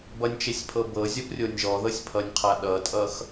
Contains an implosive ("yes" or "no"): yes